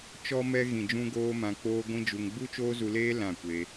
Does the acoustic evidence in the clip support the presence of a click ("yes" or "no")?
no